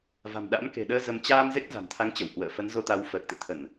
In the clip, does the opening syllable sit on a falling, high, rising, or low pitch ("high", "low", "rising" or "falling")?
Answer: low